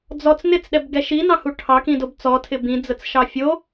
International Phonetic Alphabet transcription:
d͡z ɔ t͡s n ɪ t͡s ɗ ɛ b ɡ ɛ ʃ i n ɑ̃ h u ʈʰ ɑ k ĩ d o b t͡s ɔ tʰ ɪ b ĩ d͡z ə t͡s ʃ ɑ fʲ o

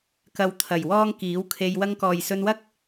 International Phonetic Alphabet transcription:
k ɐ˨ w t̪ʰ ɐ˨˩ j w ɔː˧ ŋ k iː˨˥ w kʰ e˧ j w ɐ˧ ŋ k ɔː˨ j s ɵ˧ n w ɐ˥ k̚

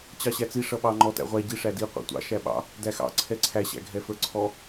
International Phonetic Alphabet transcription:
t͡ɕ ɑ ɕ æ t͡s i ʂ ʌ ɓ ɑ ŋ͡ǃ ɔ t æ̰ ʁʷ æ ɟ i ʂ æ d i qʷ æ̰ tʷ ɑ̰ ʃ æ ɓ ɑ̰ | d æ x ɑ̰ ǀʰ ɛ ǀʰ æ ɕ æ̰ ɡʱ ɛ f ə˞ ǀʰ ɔ

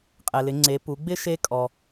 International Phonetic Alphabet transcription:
qʼ ɛ˩ l ɪ˩˧ ŋ͡ǀ e˩˧ p u˩˧ ɡ͡b ɪ˥ ʃ e˥ kʼ ɔ˩

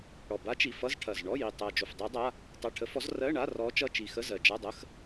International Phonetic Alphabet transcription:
ɽ ɔ˨˩ b a˧˥ t͡ʃ i˨˩ f ʌ˧˥˧ z ʈʰ ɐ˨˩ z ɳ ɔ˧˥˧ j i˨˩ tˤ ɜ˨˩ d͡ʒ o˨˩ f dˤ ɜ˧˥ dˤ a˧˥˧ | tˤ a˧˥˧ ʈʰ ə˧˥ f ɔ˧˥ z r ɜ˧˥˧ ɳ a˧˥˧ r ɔ˧˥ t͡ʃ ʌ˧˥˧ t͡ʃ i˨˩ x ə˧˥˧ z ɜ˨˩ d͡ʒ a˧˥˧ dˤ ə˧˥˧ x

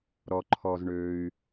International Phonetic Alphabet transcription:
ɾ ɔ˩ ǃʰ ɔ˩ z ɳ ø˩ y̯

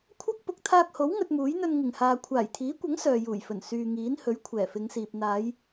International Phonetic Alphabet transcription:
kʷʰ ɐ˥ k̚ p ʊ˨ k̚ t̪ʰ aː˧ k̚ h o˨˥ w ŋ ɵ˧ t̚ m uː˨˥ j n̪ ɵ˧ n ŋ ɪ˨˩ ŋ h aː˨ kʷʰ aː˨˩ j t̪ʰ iː˨˥ kʷ ɐ˨˥ ŋ s œː˨ j uː˨˩ j f ɵ˨˩ n s yː˨ ŋ iː˨˥ n h ɵ˨˥ ɥ kʷʰ ɛː˨˩ f ɪ˨˧ ŋ s iː˨ p̚ n̪ aː˨˧ j

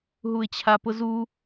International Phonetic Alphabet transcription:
ɦ u ɪ̯ t͡ɕʰ a p ʊ z u

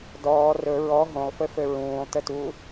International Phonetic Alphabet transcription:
d ɔː r ɵ ɹ ɔ ɦ õ lˠ f ɘ f ɘ ɹ ũː lˠ t ɘ t u

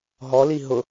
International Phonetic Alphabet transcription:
ɦ ɔ l i ɦ ʊ

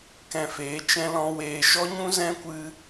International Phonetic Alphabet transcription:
k ɛ̃˧ f eː˨˦ t͡ʃ ɛ̃˦ l ɔ̃˦ w eː˧ ʃ ɔ˦ ɲ ũ˦ z ɛ̃˦ kʷ ɨ˦

